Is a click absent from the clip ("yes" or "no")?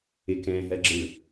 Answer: no